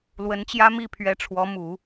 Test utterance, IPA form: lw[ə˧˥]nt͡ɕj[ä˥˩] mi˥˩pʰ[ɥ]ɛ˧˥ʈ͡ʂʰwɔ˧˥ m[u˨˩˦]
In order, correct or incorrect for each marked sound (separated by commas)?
correct, incorrect, correct, correct